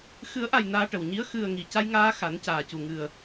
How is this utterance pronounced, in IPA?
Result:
x ɨ˨˩˦ ə̯ ʔ a˨˩ j n aː˧ ʈ ə˨˩ w ɲ i˧˥ ə̯ x ɨ˨˩ ə̯ ŋ i˨˩ c a˧ j ŋ aː˧ x a˨˩˦ n c aː˨˩ c u˨˩ ŋ ɨ˨˩ ə̯

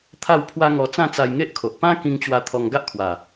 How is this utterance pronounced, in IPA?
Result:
t̪ʰ a˥˧ w pʰ w a˦ ŋ ɔ˧ t͡s ã˥˧ t͡s a˧ j ŋ e˦ ʔ kʰ o˨ ʔ p ã˦ k ĩ˧ ŋ t͡ɕ w a˧ t̪ʰ ɔ˧ ŋ ɡ a˦ ʔ kʰ w a˨˩

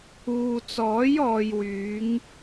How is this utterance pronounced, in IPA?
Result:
uː˨ t͡s ɔː˨˥ j ɔː˧ j w yː˨˥ ŋ

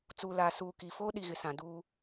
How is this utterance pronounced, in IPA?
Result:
t͡s uː˨ l aː˨ s uː˨ k i˨ f oː˦ ɗ i˨ ɣ ɪ˨ s ã˨ d uː˦

